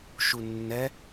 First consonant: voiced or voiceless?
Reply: voiceless